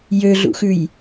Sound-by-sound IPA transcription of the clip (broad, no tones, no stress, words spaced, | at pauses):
jøɮṵxʉj